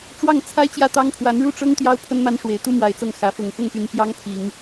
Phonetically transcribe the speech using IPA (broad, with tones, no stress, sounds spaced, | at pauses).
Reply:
ʈ͡ʂ w ɑ˥˩ ŋ t͡sʰ a˥ ɪ̯ t͡ɕ j ä˥˩ t̪ ɑ˥ ŋ pʰ w a˧˥ n ɻ u˥˩ ʈ͡ʂ ɤ˥ ŋ t̪ j ɑ˥ ʊ̯ pʰ ə˥ n m a˥ n ʂ w e˨˩ ɪ̯ t̪ u˥ m w a˧˥ ɪ̯ t͡s ɤ˥˩ ŋ x ä˧˥ f ʊ˨˩ ŋ f ʊ˥˩ ŋ p y˧˥ n p j ɑ˥ ŋ pʰ i˨˩˦ ŋ